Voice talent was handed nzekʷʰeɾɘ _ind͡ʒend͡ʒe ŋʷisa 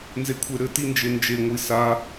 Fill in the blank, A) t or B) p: A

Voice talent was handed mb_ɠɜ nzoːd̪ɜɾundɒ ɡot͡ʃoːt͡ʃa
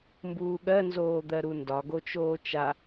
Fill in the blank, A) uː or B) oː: A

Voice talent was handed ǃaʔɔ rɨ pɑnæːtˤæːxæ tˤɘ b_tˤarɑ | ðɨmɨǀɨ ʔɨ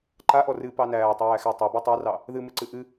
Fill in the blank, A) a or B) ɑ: A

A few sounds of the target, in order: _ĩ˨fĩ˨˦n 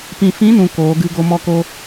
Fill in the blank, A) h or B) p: B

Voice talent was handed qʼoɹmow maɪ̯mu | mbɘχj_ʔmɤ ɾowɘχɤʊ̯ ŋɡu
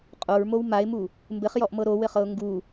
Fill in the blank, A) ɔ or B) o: A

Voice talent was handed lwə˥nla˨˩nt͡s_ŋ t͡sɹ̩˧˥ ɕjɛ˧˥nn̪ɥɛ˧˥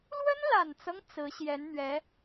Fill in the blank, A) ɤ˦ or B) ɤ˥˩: A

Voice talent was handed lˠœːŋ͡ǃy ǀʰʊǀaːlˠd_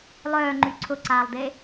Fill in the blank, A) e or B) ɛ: A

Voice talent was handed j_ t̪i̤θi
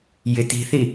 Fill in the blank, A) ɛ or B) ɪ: B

